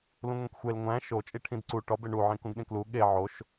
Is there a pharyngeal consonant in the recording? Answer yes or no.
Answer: yes